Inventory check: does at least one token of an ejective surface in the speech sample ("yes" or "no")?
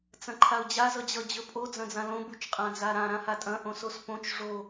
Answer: yes